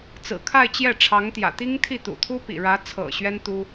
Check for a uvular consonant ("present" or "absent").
absent